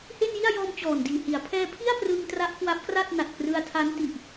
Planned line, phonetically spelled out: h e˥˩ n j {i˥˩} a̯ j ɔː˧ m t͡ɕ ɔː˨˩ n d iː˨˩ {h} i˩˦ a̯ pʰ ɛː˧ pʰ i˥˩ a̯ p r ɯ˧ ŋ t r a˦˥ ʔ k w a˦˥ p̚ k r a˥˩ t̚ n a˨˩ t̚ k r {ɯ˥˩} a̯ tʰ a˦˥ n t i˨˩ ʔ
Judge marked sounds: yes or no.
yes, yes, no

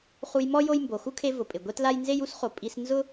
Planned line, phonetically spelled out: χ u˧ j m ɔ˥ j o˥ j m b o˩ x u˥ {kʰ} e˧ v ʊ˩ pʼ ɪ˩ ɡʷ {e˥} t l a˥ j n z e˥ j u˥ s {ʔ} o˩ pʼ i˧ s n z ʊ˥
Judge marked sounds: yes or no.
yes, yes, no

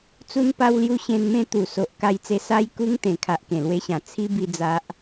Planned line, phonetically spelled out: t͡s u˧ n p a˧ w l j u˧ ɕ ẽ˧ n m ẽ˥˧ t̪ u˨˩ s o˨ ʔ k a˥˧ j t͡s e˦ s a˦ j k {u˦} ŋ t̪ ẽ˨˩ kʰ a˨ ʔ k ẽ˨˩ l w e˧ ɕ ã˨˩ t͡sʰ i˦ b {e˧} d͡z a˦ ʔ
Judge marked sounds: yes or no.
yes, no

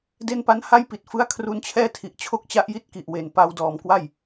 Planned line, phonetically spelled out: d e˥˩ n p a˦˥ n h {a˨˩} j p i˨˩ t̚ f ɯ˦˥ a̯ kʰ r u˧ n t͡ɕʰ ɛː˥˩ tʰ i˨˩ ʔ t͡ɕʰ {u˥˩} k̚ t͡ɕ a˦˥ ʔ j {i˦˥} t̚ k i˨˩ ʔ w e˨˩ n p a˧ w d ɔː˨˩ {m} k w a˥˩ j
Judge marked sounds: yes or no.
no, no, yes, yes

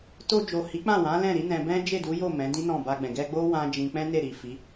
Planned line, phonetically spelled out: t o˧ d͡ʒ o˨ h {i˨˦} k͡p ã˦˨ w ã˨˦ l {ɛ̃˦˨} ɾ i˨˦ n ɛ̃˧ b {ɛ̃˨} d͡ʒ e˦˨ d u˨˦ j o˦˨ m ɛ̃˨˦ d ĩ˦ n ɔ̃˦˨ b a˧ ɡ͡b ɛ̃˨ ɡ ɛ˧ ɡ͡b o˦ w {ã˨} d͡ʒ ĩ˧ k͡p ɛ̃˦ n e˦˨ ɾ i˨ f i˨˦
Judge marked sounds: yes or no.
yes, yes, no, no

